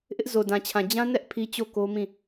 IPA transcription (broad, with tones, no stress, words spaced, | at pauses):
ʔɪ˦ʔzo˨dã˨t͡ɕʰã˨ d͡ʑã˦nɛ˦ʔ pʰi˦t͡ɕo˦˨ko˦mĩ˦˨